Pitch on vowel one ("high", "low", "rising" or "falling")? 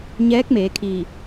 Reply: rising